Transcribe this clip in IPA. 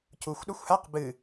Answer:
c u xʷ ɗ o xʷ h a q b ɨ

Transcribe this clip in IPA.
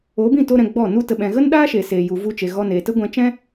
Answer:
o˨˦ b ĩ˦˨ t o˧ ɾ ɛ̃˨ ɡ͡b ɔ˦˨ n u˧ t ə˨ ɓ ɛ̃˨ ɣ ə˦ n ɗ aː˦ ʃ e˨ s eː˨ j u˨ v u˧ t͡ʃ e˨ ɣ ɔ˧ n eː˨ t ə˦ ɡʷ ɛ̃˧ t͡ʃ ɛ̃˦

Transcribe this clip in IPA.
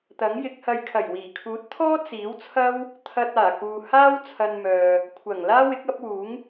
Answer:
t̪ ɐ˨˥ ŋ j ɪ˨˥ k̚ h ɐ˧ j kʰ ɐ˨˩ j w iː˨˩ kʰ uː˨˥ t̚ t̪ʰ ɔː˥ t͡s iː˨˥ w t͡sʰ ɐ˥ w | t̪ʰ ɐ˧ t̚ aː˨˩ k uː˨ h aː˥ w t͡sʰ ɐ˧ n m œː˨ | kʷʰ ɐ˨˩ ŋ l aː˥ w ɪ˨˥ k̚ ɐ˨˥ p̚ w uː˨˥ ŋ

